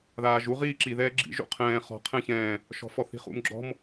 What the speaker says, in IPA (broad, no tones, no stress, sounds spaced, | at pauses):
ð aː ʒ u ʁ iː ǁ i ð ɛː ɡ͡ǁ ḭ ʒ ṵ qʰ ɛ̃ː χ ɔ̤ qʰ ɛ̃ ç ɛ̃ː | ʃ ɔ̤ f ɔ θ i̤ χ ṵ m ɡ͡ǁ ɔ̤ m